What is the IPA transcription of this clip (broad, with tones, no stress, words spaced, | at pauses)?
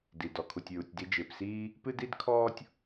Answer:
di˩ dɔ˩kʰu˩tʲɹu˩tʲ di˧d͡ʒɪː˩psiː˥ | pɨ˥di˥dkʰɔː˥tʲ